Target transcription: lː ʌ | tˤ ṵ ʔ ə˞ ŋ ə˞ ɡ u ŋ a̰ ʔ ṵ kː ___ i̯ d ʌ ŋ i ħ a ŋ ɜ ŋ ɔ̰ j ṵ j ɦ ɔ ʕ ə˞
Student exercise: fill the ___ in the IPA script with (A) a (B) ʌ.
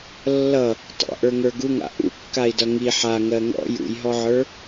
A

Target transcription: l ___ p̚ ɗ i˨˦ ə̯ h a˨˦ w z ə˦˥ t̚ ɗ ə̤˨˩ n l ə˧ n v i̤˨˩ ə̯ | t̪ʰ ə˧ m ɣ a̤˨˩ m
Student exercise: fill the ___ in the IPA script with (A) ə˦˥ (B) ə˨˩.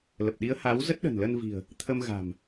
B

